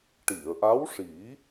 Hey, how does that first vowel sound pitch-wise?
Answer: low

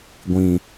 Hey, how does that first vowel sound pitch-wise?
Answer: low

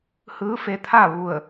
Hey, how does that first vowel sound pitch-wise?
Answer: rising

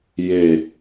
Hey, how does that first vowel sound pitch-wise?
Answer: falling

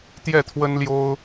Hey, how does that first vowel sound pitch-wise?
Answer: falling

